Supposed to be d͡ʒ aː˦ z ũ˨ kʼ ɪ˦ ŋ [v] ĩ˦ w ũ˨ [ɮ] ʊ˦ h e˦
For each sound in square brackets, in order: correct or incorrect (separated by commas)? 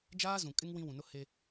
incorrect, incorrect